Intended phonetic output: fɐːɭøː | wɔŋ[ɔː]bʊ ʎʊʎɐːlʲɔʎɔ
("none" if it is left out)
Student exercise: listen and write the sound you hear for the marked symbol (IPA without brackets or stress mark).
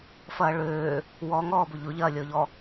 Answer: ɔː